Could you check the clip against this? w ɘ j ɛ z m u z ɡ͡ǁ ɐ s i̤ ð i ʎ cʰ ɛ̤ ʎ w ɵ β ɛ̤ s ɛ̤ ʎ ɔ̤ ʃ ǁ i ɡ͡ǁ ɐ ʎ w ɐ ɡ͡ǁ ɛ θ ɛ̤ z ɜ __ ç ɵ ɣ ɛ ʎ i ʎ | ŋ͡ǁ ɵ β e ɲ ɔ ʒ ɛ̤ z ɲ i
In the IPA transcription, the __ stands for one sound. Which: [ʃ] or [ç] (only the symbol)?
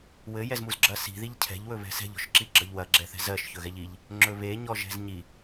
ʃ